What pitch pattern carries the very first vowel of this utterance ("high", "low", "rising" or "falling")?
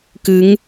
rising